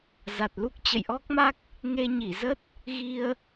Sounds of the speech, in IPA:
z a˨˩ t̚ l u˦˥ k̚ t͡ɕ ə̰˧˨ j ʔ ɔ˦˥ k̚ m a˦˥ k̚ | ŋ e˧ ɲ i˧˩ z ə˦˥ t̚ | ɣ i˧ ə̯

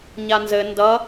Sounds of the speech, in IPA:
ɲ a n z ɘ n d ʌ

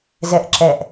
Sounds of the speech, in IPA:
z ɛ ʔ ǁ ɛ ʔ

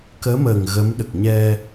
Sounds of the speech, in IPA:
k əː˧˥ m əː˨˩ ŋ ɣ ə˧˥ m ɗ ə˨˩ k̚ ɲ ɛ˧

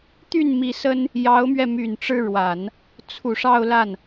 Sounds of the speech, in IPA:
t̪ y˥˩ n m i˧˥ s ə˥ n | j ɑ˧˥ ʊ̯ m ɥ ɛ˧ m y˨˩ n ʈ͡ʂ ɻ̩˥˩ ɻ w a˨˩˦ n | t͡sʰ u˨˩ ʂ ɑ˥˧ ʊ̯ l a˥˩ n

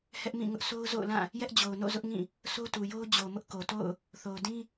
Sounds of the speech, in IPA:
h ɛ˦ ʔ m ĩ˦˨ ŋ ʊ˦ ʔ sʰ o˦ ʊ̯ z o̰˦˨ ʊ̯ l ã˦˨ | j ɛ˦ ʔ d͡ʑ o˨ ʊ̯ n o̰˦˨ z ʊ˦ ʔ ŋ ĩ˦˨ | sʰ o˦ t u˨ j o˦ ʊ̯ d͡ʑ o˨ m ʊ˦ ʔ k o˨ t o̰˦˨ ʊ̯ | θ o˨ ʊ̯ d ĩ˦

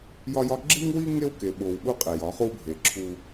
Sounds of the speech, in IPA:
j ɒ˦ j ɒ˦ ɡ͡ǁ i˦ ŋ w i˦ ŋ e˦ w k e˨ ɓ o˨ w ɓ u˦ qʼ e˨ j ɒ˨˦ χ u˦ bʱ e˨ ǁʰ u˦

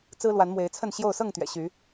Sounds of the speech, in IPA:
t͡s ɹ̩˦ l w a˨˦ n m w e˨˦ ɪ̯ t͡sʰ ə˥˨ n ɕ j o˥˨ ʊ̯ s ɤ˥˨ ŋ t̪ ɥ ɛ̰˨˩ ɕ y˨˦

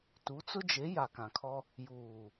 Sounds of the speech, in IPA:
t u˨˦ t͡s ʊ˦ d͡ʒ e˨˦ j a˨ k ã˨ kʰ ɔ˦ | j uː˨

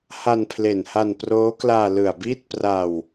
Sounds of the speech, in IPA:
h a˧ n pʰ l e˨˩ n h a˧ n p r oː˦˥ k l aː˧ l ɯ˨˩ a̯ b iː˥˩ t̚ p r a˧ w

